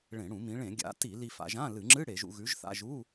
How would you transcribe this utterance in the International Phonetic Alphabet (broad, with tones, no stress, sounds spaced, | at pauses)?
ɭ ẽ˧˩˧ ɽ ũ˧˩˧ m ĩ˩˧ ɭ ẽ˧˩˧ ɡʲ a̰˨˥ t i˧˩˧ l i˧ f a̰˧ ʒ ã˧˥˧ l ɨ˧˩˧ ŋ͡ǁ ɨ˧˥˧ ɽ e˧˩˧ ʒ ṵ˧ ɣ ʉ˨˥ ʒ θ a̰˧˥˧ ʒ u˧˥˧